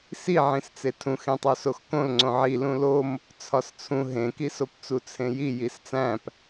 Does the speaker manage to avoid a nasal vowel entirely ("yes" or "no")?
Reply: no